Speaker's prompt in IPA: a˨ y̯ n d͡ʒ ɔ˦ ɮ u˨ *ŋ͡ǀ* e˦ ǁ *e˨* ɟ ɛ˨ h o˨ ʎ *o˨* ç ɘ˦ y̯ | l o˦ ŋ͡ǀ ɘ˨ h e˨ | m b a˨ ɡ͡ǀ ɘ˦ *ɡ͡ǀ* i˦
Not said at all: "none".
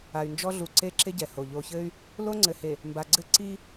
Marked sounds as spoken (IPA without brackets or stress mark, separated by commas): ǀ, e˦, o˨, ǀ